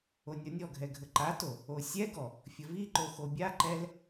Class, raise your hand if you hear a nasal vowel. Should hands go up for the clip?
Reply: no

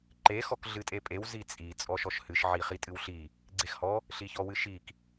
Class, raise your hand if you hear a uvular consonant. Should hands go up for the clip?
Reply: yes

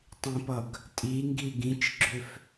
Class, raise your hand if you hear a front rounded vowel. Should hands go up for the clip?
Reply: yes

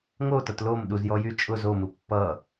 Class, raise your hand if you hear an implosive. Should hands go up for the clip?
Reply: yes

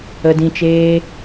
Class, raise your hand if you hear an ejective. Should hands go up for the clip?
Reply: no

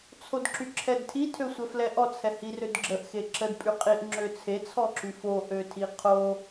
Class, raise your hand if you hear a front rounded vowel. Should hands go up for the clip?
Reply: yes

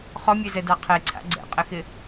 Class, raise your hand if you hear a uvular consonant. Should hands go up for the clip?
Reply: yes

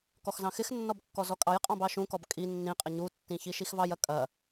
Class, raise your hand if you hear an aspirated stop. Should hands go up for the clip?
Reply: no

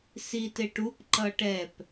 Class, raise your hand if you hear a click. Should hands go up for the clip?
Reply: yes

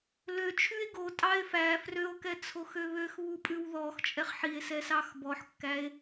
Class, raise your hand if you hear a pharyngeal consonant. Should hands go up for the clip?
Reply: yes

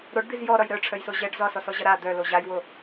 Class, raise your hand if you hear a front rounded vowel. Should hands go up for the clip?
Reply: yes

